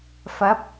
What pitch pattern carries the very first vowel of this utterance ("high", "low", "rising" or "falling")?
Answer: rising